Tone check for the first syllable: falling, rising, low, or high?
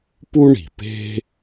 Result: high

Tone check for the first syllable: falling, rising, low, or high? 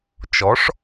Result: rising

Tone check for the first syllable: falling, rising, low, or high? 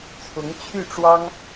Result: rising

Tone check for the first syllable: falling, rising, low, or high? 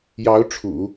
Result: rising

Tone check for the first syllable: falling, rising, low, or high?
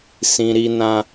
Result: high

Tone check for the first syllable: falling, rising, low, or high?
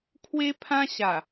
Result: high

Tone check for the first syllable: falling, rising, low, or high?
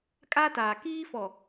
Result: high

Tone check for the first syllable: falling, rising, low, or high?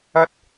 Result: high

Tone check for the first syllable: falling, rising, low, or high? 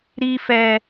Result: high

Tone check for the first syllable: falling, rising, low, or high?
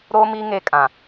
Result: high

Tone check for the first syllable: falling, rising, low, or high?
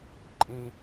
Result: high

